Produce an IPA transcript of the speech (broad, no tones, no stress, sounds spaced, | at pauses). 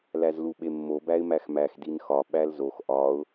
l æ z l u ɓ e mː o b æ ɪ̯ m æ x m æ x d i n x ɒ ɓ æ l z o x ʔ ɒ ʊ̯